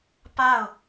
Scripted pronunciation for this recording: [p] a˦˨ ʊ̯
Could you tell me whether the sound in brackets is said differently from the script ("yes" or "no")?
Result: no